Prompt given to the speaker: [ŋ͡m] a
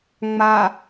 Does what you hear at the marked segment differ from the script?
no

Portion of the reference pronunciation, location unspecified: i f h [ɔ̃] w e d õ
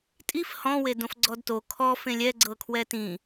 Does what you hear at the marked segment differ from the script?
no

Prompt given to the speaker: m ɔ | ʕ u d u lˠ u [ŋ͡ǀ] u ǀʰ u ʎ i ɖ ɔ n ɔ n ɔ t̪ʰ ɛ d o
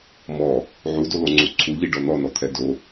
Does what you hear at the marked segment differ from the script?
no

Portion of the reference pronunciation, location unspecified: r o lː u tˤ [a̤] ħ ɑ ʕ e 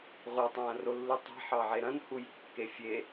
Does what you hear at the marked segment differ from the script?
no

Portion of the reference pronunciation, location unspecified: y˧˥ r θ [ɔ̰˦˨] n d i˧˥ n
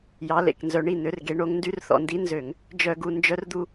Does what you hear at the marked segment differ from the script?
yes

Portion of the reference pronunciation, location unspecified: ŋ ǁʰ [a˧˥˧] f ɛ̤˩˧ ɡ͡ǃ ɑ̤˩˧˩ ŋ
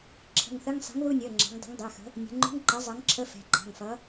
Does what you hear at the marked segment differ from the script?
yes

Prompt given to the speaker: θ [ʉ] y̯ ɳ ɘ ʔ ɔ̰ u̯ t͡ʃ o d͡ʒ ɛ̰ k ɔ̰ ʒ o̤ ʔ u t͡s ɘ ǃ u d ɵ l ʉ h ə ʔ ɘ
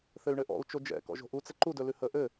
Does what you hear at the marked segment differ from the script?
yes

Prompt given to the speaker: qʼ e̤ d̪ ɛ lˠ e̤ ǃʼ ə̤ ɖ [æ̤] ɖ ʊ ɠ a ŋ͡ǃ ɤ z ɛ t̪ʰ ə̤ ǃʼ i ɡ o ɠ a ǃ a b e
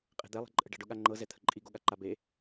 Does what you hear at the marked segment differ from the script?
yes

